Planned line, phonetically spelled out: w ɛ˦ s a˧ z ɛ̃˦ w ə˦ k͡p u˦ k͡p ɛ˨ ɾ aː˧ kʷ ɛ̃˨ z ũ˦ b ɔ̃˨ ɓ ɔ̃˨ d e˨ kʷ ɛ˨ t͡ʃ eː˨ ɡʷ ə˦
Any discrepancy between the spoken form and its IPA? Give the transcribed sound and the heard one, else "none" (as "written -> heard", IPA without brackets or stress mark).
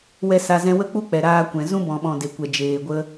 t͡ʃ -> d͡ʒ